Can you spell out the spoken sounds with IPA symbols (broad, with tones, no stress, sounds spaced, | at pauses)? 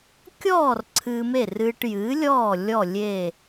kʲ ɔː˥˩ r ǀʰ ɨː˧ m e˥˩ r ɨː˧ ʈ j ɨː˩˥ lʲ ɔː˥˩ lʲ ɔ˥˩ lʲ e˥˩